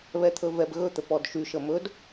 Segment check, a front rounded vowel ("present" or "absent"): present